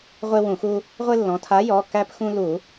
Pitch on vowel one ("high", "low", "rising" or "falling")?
high